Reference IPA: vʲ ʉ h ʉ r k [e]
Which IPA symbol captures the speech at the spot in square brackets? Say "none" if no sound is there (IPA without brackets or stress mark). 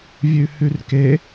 e